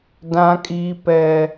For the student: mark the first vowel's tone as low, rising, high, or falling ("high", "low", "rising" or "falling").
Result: high